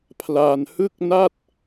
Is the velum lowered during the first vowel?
no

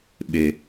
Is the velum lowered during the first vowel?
no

